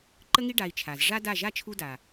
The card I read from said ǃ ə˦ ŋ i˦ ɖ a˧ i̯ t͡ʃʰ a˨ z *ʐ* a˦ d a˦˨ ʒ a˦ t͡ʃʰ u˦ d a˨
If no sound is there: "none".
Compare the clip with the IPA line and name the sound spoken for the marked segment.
ʐ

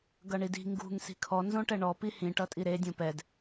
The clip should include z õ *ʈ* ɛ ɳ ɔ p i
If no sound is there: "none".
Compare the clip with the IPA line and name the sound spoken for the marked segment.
ʈ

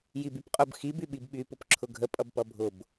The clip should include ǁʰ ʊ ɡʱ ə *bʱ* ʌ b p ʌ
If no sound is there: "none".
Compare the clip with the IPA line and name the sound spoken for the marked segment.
pʼ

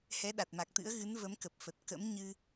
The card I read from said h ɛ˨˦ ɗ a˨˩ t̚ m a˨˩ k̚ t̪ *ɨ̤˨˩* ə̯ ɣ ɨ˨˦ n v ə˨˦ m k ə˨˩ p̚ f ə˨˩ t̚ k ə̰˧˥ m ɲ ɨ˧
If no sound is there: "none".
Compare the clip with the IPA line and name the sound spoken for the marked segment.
ɨ̰˧˥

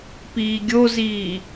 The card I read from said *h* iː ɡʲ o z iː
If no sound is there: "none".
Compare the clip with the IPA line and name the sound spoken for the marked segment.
p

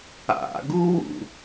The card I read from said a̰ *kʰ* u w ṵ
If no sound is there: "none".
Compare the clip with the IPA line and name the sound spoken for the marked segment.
ɡ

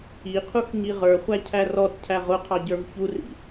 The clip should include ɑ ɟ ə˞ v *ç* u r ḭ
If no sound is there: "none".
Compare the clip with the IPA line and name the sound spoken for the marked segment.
ç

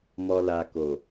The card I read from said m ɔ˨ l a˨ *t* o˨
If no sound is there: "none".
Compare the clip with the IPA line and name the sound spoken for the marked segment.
k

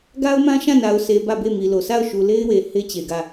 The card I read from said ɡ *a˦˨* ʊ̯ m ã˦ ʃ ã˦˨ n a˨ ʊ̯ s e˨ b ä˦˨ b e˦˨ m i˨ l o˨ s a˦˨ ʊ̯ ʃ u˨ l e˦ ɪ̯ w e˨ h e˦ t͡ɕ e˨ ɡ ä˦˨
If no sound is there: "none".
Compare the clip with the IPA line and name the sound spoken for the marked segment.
a˦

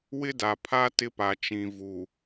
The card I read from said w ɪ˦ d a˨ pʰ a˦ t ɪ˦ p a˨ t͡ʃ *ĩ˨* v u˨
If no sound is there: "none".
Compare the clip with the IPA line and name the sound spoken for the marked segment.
ĩ˨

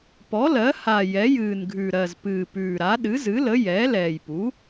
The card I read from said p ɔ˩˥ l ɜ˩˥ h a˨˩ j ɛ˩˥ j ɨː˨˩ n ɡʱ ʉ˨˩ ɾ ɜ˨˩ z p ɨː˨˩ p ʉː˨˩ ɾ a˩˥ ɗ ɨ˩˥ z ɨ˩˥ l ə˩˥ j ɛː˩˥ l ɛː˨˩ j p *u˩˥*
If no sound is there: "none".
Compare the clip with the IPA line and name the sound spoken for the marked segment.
u˩˥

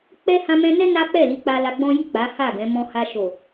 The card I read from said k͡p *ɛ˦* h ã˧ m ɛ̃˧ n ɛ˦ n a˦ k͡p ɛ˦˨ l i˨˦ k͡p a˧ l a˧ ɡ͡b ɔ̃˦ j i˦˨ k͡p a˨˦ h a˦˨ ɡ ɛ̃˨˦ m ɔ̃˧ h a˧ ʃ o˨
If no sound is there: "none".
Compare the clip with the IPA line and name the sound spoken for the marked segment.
ɛ˦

